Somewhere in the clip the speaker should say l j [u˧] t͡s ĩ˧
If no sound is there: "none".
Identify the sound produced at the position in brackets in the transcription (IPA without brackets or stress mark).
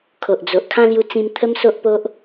u˧